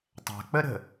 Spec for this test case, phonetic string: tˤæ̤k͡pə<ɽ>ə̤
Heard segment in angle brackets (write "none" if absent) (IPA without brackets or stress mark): ɾ